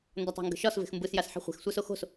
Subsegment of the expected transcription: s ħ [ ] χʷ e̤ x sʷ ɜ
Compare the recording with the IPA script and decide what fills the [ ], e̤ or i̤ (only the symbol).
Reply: e̤